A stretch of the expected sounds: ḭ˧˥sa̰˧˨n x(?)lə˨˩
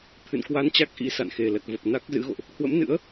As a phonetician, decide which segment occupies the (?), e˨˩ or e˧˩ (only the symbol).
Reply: e˨˩